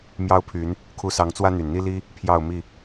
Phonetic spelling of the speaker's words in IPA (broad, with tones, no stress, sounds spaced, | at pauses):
m j ɑ˦ ʊ̯ pʰ y˨˦ n | kʰ u˨˦ s ɑ˨˦ ŋ t͡s w ä˦ n̪ y˨˩ n n̪ i˦ l i˦ | pʰ j ɑ˥˨ ʊ̯ m i˥˨